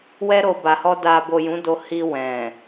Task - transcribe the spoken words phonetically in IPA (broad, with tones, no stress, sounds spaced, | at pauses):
w ɛ˧ ɾ o˨ b a˨ h ɔ˧ d a˨ b o˨ j ũ˨˦ d o˧ h i˧ w ɛ̃˨